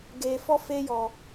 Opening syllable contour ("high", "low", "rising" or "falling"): low